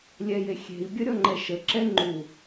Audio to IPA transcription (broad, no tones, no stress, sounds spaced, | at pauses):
lʲ ɛ j e xʲ e̤ i̯ bʲ ə ɾʲ ɔ ŋ͡ǃ ɛ ʃ ə ǁ ɛ ŋ͡ǃ u